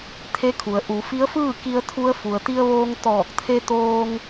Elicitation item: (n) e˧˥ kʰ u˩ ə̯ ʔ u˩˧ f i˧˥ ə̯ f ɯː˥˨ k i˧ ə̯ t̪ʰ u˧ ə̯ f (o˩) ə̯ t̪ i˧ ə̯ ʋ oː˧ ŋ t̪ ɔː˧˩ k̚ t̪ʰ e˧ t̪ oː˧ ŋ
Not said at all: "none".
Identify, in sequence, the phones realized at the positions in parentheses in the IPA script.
t̪ʰ, u˩

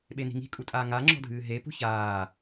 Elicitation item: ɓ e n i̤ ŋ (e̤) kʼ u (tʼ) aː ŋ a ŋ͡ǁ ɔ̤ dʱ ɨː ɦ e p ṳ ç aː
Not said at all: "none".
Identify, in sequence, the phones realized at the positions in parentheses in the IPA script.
i̤, tʼ

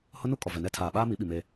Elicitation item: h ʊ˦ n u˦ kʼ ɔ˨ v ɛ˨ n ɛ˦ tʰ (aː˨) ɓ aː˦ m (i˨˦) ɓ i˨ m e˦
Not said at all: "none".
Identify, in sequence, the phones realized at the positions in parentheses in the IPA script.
aː˨, i˨˦

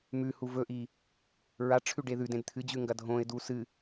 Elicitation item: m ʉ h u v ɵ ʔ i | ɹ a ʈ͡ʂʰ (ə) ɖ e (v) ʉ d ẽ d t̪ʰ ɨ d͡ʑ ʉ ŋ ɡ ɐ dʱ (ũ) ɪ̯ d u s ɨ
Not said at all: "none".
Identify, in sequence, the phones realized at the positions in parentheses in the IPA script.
ʉ, ð, õ

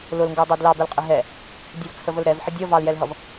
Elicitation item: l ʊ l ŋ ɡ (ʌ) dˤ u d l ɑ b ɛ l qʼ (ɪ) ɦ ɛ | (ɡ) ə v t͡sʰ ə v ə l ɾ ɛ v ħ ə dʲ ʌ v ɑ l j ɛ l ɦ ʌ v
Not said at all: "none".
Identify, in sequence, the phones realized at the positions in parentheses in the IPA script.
ə˞, ɪ, dʲ

